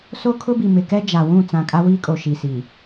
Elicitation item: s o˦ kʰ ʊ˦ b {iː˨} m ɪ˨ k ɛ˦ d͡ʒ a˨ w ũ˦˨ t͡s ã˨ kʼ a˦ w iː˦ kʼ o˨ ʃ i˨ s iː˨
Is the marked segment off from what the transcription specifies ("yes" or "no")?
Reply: yes